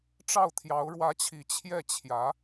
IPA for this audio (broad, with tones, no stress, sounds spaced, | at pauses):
ʈ͡ʂ ɑ˥˩ ʊ̯ t̪ʰ j ɑ˧˥ ʊ̯ ɻ w ä˧˥ t͡ɕʰ i˨˩ t͡ɕʰ j ɛ˥˩ t͡ɕʰ j ä˧˥